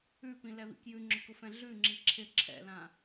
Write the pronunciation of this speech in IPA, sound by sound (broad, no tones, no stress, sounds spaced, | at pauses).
ʉ p ĩ l ɛ β ḭ k j ʉ ŋ͡ǁ ʊ k ʊ f ɛ̃ ɮ ʉ ŋ͡ǁ i ǁʰ ɪ ǁʰ ɛ̰ l ã